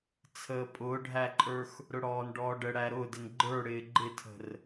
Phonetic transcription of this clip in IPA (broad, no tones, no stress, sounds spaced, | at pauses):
t͡sʰ əː pʼ ʊː ɖʱ æ ǃʼ ə˞ x | ɾ ʊ ɽ ɔː n ɖ ɔː ɖ ə ɽ æ ɾ ʊː d ɪ n ɡ͡ǃ ə˞ ɽ ɪː ɡ͡ǃ ɪ tʰ ə̤ r